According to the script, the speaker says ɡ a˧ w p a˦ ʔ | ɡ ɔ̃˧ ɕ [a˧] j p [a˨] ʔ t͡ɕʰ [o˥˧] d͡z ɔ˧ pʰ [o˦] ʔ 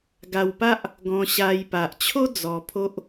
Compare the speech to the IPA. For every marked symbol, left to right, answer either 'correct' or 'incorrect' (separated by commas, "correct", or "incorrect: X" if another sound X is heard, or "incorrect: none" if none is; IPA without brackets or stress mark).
correct, correct, incorrect: o˦, correct